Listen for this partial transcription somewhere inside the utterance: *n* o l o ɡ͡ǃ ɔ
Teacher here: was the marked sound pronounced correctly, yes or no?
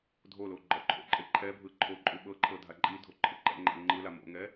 no